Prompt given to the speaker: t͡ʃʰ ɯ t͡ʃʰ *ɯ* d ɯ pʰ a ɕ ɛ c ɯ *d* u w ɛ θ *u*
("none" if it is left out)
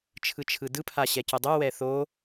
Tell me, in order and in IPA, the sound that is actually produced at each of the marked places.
ɯ, dˤ, o

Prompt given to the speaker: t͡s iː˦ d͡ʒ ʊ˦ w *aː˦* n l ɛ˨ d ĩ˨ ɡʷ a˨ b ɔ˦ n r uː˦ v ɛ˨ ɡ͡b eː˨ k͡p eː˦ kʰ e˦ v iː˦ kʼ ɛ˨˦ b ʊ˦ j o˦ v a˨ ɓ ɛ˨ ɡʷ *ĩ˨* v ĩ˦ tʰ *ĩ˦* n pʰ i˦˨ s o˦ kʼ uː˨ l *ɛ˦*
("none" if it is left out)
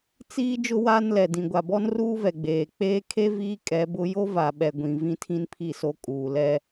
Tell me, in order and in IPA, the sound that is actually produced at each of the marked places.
aː˦, ĩ˨, ĩ˦, ɛ˦

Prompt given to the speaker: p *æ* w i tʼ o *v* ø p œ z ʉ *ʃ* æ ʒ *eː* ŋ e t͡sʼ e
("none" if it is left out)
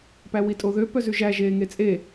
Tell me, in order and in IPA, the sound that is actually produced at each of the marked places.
æ, ð, ʒ, eː

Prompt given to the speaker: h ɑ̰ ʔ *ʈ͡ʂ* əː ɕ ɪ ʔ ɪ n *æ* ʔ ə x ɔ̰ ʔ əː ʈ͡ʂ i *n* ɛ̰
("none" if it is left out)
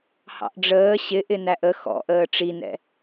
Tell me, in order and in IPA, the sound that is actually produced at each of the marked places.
ɖ͡ʐ, æ, n

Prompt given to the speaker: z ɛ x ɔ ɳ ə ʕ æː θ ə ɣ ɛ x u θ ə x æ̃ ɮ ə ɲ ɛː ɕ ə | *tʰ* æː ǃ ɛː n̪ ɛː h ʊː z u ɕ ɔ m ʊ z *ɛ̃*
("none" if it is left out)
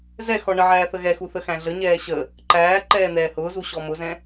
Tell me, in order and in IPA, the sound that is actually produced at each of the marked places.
ǃ, ɛ̃

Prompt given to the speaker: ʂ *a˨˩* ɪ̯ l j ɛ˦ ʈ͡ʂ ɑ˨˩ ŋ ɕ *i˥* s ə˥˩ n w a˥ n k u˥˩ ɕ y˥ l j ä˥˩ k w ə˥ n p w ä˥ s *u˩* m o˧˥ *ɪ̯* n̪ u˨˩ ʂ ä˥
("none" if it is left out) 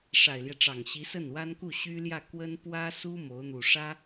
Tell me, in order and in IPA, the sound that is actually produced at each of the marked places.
a˨˩, i˧˥, u˥, ʊ̯

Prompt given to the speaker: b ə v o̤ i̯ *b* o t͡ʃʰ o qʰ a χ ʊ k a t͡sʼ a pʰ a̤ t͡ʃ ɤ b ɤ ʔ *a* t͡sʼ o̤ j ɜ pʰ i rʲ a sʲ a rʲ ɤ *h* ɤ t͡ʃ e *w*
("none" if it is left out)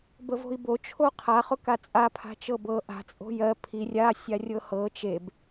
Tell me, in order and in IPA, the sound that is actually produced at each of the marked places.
b, a̤, h, b

